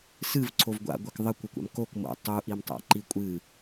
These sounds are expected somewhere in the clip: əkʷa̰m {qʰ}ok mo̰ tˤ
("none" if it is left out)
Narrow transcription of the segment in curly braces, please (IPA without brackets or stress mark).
k